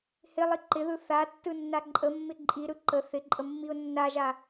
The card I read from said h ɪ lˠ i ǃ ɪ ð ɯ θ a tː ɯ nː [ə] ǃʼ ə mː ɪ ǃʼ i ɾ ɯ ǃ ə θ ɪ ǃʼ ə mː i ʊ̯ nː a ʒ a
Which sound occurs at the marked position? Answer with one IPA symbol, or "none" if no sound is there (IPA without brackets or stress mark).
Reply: a